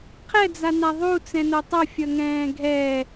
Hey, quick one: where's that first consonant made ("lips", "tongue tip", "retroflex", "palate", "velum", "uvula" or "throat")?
uvula